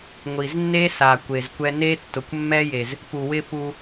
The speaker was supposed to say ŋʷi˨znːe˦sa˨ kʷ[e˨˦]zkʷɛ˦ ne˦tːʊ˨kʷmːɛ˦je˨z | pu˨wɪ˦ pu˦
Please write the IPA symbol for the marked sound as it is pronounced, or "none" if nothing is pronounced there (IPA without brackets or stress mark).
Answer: e˨